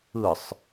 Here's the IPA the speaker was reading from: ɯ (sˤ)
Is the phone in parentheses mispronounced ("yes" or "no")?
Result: no